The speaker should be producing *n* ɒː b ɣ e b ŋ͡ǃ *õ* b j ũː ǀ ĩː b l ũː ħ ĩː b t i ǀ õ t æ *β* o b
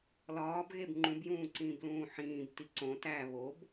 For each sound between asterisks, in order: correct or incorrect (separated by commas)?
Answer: incorrect, incorrect, correct